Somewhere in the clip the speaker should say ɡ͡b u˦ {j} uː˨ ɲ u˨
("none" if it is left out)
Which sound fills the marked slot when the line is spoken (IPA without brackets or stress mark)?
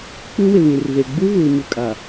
ɣ